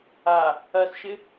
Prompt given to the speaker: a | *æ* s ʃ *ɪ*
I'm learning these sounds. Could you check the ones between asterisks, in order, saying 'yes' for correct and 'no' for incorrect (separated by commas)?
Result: no, yes